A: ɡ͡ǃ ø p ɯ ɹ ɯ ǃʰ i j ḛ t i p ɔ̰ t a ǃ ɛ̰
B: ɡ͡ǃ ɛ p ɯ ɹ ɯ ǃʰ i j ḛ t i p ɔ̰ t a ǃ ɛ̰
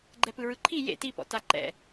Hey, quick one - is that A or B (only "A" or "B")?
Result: B